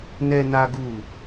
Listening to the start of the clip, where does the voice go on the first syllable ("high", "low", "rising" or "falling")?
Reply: high